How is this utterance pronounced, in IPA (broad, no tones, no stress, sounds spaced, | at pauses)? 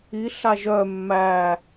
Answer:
i ɬ a ʒ œ mː æ